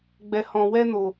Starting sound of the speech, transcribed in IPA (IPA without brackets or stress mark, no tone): ɡ͡b